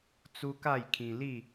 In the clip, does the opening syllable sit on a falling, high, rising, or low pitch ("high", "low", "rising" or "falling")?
high